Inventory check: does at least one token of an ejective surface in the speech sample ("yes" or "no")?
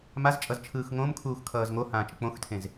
yes